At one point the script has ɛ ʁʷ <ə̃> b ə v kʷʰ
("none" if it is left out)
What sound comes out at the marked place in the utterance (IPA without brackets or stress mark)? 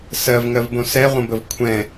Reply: ə̃